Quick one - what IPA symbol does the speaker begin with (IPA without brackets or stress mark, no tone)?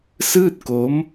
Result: s